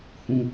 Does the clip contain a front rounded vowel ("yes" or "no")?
no